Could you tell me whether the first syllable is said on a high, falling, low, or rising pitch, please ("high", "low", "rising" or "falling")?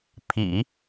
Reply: low